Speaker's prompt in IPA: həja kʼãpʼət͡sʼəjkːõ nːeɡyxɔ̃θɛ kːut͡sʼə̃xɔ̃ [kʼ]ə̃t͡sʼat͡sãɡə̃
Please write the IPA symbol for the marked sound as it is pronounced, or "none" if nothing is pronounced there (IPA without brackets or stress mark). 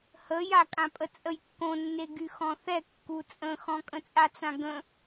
kʼ